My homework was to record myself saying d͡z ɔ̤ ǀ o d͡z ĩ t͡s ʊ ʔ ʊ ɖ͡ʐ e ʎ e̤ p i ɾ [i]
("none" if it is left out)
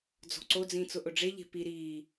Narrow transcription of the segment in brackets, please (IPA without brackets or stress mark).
iː